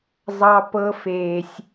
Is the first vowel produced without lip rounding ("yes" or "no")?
yes